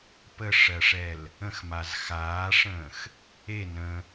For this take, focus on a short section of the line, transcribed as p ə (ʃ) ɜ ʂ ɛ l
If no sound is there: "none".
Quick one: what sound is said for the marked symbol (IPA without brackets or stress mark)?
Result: ʂ